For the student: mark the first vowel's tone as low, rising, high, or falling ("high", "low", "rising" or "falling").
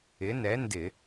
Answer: rising